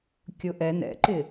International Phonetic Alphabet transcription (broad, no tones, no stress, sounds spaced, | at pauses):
kʲ ʊ ʔ ɛ n ɛ̰ ǃ ɪ